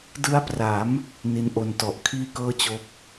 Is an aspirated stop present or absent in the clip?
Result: present